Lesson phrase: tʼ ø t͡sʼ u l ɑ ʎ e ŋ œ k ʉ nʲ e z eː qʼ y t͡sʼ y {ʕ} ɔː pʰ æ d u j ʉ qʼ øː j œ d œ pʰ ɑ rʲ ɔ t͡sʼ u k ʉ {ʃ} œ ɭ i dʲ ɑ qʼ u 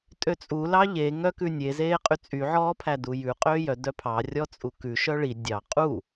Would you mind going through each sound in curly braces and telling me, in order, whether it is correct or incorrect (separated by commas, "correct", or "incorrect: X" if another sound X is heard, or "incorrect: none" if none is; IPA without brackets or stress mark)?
correct, correct